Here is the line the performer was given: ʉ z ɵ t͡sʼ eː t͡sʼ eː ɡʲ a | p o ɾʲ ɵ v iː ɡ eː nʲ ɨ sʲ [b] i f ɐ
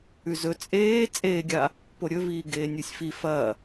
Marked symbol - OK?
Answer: no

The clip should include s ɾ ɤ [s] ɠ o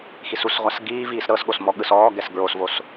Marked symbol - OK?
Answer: yes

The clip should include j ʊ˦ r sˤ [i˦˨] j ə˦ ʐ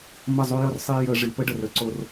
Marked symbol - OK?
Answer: no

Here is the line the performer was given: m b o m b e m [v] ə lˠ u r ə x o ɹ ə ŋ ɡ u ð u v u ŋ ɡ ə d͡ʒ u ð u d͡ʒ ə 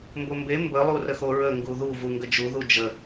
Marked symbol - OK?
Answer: no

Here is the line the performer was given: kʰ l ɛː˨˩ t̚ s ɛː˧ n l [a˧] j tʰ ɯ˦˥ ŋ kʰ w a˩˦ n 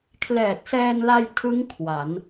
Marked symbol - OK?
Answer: yes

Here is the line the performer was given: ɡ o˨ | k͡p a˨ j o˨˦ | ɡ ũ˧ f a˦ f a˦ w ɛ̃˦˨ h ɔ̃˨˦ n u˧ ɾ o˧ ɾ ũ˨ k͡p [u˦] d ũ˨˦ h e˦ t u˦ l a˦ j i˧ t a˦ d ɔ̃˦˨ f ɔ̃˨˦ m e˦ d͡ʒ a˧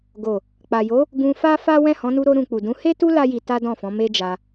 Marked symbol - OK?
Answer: no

